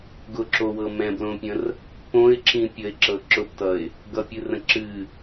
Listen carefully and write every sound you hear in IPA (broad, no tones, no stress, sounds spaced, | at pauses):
ɡ ʊ ǁ o w ɤ m ɛ̃ b l õ pʲ ə̃ r | p õ ɪ̯ ǁ ĩ pʲ ə ɪ̯ ǁ ɤ ǁ ʊ p t ʌ ɪ̯ | ɡ ʌ pʲ ɨ r ə̃ ǁ ɨ